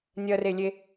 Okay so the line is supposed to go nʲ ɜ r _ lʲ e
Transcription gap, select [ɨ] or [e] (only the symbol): e